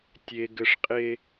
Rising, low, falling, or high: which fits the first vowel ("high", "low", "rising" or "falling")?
high